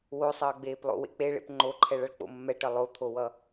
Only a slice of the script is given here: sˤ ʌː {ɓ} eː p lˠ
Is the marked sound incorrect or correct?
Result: incorrect